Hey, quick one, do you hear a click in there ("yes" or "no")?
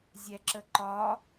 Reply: yes